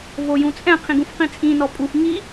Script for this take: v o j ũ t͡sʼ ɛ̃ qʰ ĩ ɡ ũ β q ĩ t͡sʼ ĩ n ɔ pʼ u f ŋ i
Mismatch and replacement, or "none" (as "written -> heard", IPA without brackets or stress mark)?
β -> f